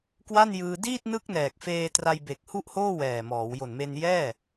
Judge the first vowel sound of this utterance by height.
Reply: low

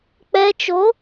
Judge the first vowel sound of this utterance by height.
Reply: mid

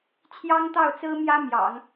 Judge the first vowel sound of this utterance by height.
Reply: low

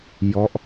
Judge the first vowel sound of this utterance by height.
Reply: mid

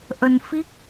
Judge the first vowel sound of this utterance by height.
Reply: mid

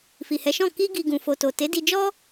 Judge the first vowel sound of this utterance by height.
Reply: high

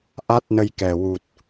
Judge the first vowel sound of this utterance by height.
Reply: low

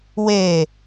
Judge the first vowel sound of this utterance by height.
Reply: mid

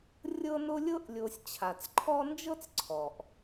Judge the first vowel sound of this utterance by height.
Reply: mid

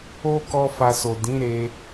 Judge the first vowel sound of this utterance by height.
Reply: mid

